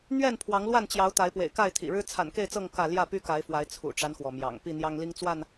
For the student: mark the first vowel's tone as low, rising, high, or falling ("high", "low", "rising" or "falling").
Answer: falling